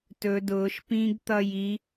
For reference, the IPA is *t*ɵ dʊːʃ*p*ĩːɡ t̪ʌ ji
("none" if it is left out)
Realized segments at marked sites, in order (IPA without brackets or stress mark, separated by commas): t, p